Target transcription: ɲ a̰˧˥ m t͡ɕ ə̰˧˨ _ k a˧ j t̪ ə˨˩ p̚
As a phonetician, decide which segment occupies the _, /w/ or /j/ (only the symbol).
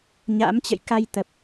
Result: j